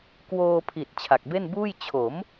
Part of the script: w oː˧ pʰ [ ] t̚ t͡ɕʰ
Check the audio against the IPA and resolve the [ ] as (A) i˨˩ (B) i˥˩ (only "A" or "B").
A